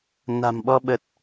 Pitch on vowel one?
low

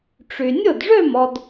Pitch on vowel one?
low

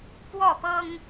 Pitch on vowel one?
falling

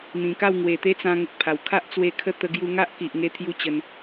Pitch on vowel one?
low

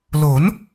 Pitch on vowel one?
rising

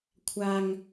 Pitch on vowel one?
high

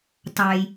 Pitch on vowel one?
low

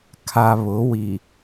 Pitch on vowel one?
low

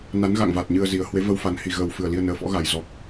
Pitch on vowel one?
rising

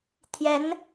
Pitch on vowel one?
rising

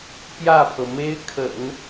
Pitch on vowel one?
falling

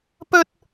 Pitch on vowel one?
high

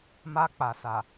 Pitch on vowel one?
high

